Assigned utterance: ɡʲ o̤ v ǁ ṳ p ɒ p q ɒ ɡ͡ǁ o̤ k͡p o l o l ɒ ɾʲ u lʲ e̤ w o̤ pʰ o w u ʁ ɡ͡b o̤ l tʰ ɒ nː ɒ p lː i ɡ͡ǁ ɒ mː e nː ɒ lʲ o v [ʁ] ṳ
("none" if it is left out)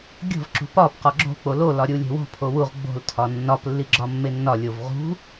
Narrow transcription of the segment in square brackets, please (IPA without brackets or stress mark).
ʁ